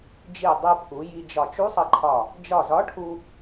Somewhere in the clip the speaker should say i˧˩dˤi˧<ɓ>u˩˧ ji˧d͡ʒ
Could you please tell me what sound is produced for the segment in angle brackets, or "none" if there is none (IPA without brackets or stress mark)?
pʰ